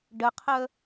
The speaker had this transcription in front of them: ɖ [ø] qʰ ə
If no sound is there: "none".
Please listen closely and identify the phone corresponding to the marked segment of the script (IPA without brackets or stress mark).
ə